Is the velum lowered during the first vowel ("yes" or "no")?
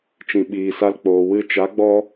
yes